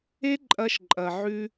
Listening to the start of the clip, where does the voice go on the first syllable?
high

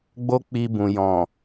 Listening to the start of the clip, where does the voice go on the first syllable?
high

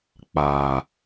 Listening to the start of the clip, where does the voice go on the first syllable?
low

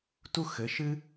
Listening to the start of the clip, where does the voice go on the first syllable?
high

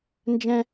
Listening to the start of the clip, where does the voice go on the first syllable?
high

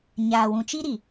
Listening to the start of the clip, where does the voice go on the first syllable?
low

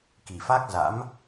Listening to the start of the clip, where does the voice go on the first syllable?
low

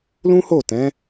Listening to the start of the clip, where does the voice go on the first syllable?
high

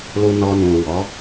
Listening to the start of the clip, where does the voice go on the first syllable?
low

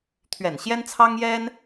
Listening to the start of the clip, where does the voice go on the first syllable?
low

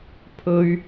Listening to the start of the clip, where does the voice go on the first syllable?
low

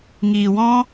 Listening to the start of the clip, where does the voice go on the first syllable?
low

